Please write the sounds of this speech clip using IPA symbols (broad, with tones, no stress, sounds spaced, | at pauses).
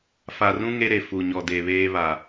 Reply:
f a˨ r ũ˦ ŋ e˦ ɾ e˨ f u˨ ɲ ɔ˨ d e˨ β eː˦ β a˨